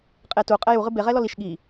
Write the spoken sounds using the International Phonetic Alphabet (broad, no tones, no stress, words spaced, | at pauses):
qʼetu qʼɛju ʁɨbe ʁɛlɔliʃ ɠi